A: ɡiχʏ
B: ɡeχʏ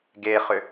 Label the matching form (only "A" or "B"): B